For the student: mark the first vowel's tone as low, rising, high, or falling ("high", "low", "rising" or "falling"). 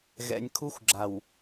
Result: low